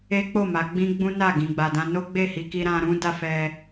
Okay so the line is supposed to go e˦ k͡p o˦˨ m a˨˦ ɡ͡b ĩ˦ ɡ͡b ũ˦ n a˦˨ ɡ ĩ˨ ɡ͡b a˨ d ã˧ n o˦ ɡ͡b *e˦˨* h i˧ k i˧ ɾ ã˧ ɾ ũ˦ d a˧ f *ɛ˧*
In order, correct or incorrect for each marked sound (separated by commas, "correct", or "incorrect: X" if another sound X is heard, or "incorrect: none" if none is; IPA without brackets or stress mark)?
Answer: correct, correct